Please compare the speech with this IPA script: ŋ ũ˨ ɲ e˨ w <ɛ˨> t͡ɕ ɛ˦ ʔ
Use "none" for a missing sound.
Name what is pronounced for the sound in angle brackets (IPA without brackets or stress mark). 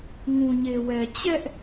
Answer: ɛ˨